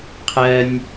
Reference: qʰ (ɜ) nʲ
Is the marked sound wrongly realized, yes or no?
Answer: no